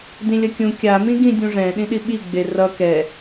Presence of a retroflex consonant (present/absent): present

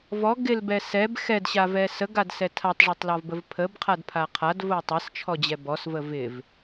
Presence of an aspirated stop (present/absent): present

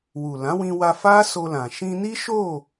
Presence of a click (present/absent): absent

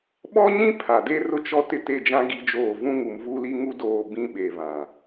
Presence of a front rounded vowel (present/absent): absent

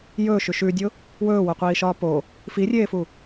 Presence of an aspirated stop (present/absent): absent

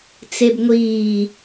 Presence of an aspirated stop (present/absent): absent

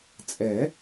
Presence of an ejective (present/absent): present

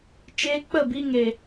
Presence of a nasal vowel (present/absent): absent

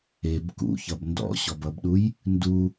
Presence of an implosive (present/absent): present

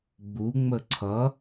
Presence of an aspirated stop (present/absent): present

